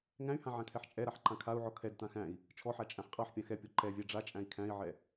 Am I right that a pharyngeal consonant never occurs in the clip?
no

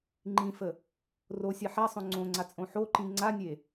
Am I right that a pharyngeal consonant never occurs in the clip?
no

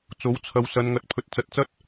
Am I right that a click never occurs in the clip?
yes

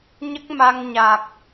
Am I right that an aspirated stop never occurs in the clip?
yes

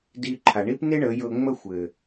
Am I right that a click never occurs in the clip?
no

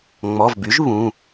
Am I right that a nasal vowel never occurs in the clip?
no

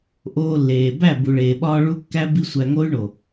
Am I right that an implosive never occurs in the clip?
no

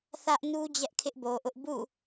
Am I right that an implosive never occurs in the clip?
yes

